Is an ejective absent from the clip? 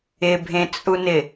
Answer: no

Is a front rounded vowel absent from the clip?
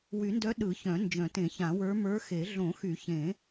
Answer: no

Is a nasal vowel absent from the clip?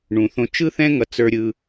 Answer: no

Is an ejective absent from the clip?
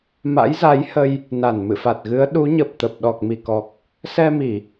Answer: yes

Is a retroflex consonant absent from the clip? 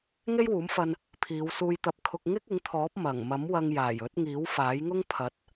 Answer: yes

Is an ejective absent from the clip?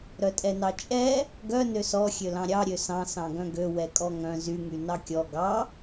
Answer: no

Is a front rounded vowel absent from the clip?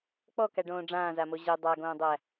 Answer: yes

